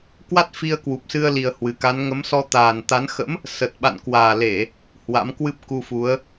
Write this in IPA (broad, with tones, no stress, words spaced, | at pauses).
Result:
kwa˦˥t̚fi˧ə̯ kwu˨˩p̚sɨ˧ə̯li˨˩ə̯ hwɨ˨˩ka˨˦n ŋə˨˦msɔ˧ t̪aː˨˩nt̪a˨˦n xə̰˧˥m | sə˨˩t̚ɓa̰˧˨n kwaː˨˩le˧˩˨ | hwa̰˧˥m kwɨ˦˥p̚ ku˧fu˨˦ə̯